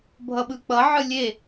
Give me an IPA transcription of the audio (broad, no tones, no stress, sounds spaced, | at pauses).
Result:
bʱ ʌ ɓ ɯ k͡p ʌ ʕ ɯ lʲ e